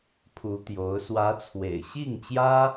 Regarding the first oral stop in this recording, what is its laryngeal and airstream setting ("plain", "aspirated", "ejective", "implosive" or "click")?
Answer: aspirated